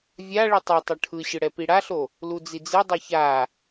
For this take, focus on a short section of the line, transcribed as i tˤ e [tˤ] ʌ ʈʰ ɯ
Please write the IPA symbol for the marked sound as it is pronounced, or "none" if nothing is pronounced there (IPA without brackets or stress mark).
tˤ